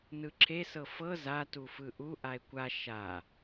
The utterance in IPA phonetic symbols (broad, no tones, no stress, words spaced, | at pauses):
nɯǁʰesɤ fɤ za tufɯʔu ʔae̯kʷa ʃa